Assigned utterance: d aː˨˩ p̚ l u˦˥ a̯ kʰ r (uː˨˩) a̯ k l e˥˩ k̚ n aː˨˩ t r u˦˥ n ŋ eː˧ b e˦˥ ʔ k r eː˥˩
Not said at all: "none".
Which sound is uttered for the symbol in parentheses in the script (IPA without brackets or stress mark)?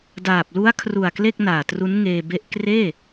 u˨˩